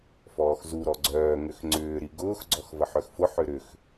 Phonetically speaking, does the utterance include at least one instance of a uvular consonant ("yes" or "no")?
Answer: no